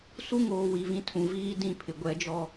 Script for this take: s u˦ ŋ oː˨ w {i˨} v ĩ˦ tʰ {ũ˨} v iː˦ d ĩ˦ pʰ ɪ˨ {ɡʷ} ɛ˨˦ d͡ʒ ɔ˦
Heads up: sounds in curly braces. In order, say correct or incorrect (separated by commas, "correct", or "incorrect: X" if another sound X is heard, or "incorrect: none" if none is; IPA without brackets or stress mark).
correct, correct, correct